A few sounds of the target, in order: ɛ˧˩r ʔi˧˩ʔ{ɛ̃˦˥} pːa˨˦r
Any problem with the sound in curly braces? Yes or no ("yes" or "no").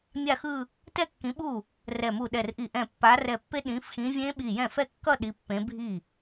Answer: yes